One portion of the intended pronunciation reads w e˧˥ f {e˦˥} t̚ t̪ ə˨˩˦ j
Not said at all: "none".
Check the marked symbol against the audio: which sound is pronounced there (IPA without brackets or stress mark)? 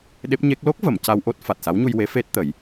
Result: e˦˥